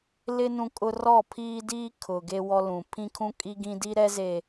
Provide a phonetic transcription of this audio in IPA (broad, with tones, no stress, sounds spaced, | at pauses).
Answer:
l ɪ˦ n ũ˦ kʼ ʊ˦ r ɔ˦˨ pʰ iː˦ d iː˦ kʰ ʊ˨ ɡ e˦ w ɔ˦ l ũ˨ pʰ ĩ˦ kʰ ũ˦ kʼ i˦ ɡ ĩ˦ d i˦ ɾ ɛ˦ z e˨